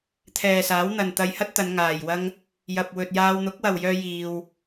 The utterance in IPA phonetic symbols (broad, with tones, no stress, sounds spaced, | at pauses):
t̪ʰ ɛː˨ s aː˨˥ w n̪ ɐ˨ n t̪ ɐ˧ j h ɐ˥ t̚ t̪ ɐ˨˧ n ŋ aː˨ j w ɐ˥ ŋ | j ɐ˨ p̚ w ɵ˨ t̚ j aː˧ w n̪ ʊ˨˥ k̚ w ɐ˨ w j œː˧ j iː˧ w